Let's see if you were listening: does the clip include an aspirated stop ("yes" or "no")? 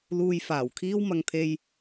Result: yes